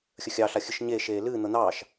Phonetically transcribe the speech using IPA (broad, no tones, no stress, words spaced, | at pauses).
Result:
xʲəxʲɑɬa xʲɨʃɲeːʃeː lɨːn̪ɤ n̪ɑːʃ